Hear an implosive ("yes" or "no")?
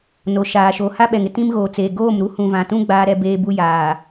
yes